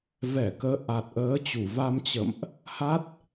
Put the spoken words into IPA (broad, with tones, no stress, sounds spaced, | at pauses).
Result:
v ɛ˧˩ k əː˨˦ ʔ a˨˩ t̚ ʔ əː˨˦ t͡ɕ u˧˩ v a˧ m t͡ɕ ə̰˧˨ m ʔ | h a˦˥ t̚